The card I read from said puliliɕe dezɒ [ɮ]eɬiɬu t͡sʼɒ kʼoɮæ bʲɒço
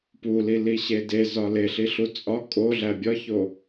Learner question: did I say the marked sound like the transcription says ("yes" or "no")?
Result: no